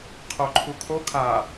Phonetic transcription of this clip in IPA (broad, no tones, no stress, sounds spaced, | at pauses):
qʰ o ǃʰ u kʰ o kʰ a